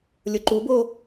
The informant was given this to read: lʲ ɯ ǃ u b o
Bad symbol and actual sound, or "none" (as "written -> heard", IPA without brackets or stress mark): ɯ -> ʊ